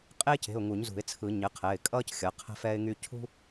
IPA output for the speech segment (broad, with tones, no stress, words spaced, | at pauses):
qʼeː˥ce̤˩˧˩ʊ̯ ŋu˨˩˦ɲzṳ˨˩˦ɪ̯t͡sʰɯ˨˩˦ ɲɘ˩˥qʰɛ˩˧˩ɪ̯ kʼʌː˥c xʲʌ˩˥ qʰɛ̤˥ fɛː˥ɪ̯ŋy˥ cʰṳ˥